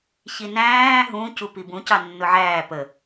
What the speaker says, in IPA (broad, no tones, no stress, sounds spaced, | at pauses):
ç i n æ̃ː ɦ ũ c u p i b ũ c ɑ nː ʊ ʕ æː p ə